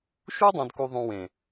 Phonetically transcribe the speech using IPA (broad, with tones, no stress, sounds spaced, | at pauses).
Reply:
ʃ u˦ dˤ œ̃˨ d k u˨ ðˤ ũ˨ w ẽ˨